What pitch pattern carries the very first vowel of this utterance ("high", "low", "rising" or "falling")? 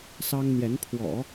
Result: high